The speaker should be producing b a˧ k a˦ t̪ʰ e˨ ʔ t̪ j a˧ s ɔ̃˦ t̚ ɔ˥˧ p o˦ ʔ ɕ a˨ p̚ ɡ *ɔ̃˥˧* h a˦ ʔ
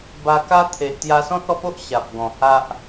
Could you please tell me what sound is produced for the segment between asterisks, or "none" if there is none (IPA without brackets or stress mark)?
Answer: ɔ̃˨˩